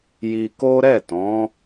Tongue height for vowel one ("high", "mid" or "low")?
high